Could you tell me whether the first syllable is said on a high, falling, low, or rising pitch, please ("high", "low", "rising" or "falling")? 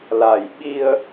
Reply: low